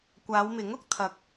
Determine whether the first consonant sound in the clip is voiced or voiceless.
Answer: voiceless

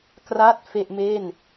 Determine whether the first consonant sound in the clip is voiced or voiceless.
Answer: voiceless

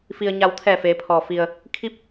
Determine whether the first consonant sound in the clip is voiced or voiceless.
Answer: voiceless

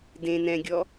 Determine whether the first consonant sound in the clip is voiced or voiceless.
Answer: voiced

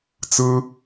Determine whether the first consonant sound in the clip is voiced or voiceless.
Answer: voiceless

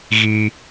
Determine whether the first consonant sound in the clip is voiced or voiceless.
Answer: voiced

